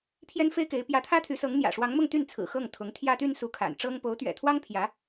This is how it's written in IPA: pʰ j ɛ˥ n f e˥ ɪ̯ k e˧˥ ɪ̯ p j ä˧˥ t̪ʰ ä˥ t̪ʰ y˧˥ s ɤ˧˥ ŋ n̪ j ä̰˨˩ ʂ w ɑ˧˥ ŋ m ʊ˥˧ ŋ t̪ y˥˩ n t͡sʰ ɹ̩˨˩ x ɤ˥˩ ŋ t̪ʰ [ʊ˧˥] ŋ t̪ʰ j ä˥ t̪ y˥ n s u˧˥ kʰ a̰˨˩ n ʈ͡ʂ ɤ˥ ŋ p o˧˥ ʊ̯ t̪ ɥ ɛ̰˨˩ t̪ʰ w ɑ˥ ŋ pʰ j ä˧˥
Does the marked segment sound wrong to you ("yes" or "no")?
no